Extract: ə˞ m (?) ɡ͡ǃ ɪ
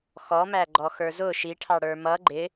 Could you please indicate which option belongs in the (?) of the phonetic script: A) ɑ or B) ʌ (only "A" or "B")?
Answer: B